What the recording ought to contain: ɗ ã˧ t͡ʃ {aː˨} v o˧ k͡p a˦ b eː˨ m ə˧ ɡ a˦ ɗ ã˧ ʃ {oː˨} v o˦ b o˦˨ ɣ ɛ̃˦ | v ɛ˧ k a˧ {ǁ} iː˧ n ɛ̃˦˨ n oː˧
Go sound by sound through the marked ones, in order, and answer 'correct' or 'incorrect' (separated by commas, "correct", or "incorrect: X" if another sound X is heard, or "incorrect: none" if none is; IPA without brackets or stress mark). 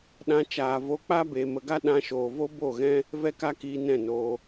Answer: correct, correct, incorrect: k